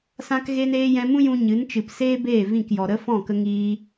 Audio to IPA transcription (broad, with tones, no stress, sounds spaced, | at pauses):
s ã˧ k ɣ e˧ n eː˧ j ɛ̃˧ m ũ˦ j ũ˧ ɲ ɨ˨˦ n t͡ʃ ɨ˨ p s eː˦ b eː˦˨ v ĩ˦˨ k j ɔ˨ ɾ ə˦ f ɔ̃˦˨ k ə˧ ŋ iː˧